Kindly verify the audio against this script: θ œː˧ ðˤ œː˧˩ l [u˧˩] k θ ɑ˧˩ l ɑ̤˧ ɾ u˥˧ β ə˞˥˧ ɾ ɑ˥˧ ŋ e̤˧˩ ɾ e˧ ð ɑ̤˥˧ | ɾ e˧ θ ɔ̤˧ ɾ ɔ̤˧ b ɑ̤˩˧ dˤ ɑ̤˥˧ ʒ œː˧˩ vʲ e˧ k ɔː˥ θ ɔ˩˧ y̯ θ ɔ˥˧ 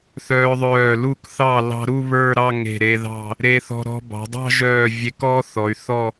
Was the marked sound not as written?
no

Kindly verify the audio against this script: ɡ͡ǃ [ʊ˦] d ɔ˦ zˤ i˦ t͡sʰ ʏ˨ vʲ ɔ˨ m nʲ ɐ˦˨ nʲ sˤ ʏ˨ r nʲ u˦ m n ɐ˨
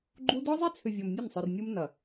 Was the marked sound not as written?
yes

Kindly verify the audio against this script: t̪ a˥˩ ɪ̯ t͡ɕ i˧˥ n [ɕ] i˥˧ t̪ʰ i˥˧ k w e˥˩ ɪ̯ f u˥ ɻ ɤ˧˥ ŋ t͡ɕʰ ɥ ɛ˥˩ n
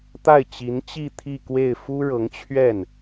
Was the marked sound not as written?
yes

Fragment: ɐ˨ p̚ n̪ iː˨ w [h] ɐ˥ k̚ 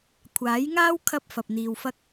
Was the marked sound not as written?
yes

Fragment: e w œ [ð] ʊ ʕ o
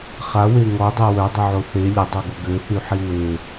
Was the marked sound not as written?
yes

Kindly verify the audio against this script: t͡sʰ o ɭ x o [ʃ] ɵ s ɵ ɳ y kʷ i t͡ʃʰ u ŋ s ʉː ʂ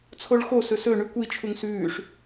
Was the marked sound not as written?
yes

